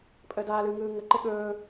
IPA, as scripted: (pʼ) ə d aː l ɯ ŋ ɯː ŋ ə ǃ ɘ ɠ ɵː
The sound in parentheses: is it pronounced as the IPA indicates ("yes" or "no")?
yes